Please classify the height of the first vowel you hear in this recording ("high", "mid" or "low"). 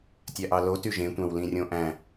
low